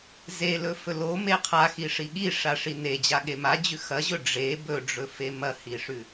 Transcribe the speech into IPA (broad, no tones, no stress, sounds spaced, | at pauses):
z e l ɵ f ɵ l o m e qʰ a x i ʂ i ɠ i ʂ a ʂ i n e d͡ʑ a ɠ e m a d͡ʑ ʉ x ɐ ʑ ɵ ɖ͡ʐ e b ɵ ɖ͡ʐ ɵ f e m ɐ h i ʂ ʉ